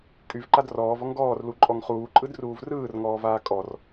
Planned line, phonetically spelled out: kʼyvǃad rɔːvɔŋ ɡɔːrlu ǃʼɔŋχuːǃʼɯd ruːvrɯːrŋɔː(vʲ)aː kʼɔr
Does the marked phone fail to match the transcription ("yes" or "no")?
yes